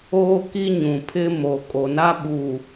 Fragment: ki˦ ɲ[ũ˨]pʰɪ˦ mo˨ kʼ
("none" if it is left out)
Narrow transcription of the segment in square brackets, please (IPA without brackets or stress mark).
ũ˨